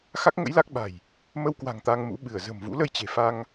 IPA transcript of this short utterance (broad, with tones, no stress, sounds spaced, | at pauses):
x a˦˥ k̚ ŋ ə̰˧˥ j l a˦˥ k̚ ɓ a̤˨˩ j | m ə˧ w k w a̤˨˩ ŋ t̪ a˧ ŋ m ṵ˧˥ ɓ ɨ˧˩ ə̯ z ə̤˨˩ m v ṵ˧˥ l ə˧ j t͡ɕ e̤˨˩ f a˧ ŋ